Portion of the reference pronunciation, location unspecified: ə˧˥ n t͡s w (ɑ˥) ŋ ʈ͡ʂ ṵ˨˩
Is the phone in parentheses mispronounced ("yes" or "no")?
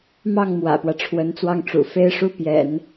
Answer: yes